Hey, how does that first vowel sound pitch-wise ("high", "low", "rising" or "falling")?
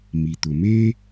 low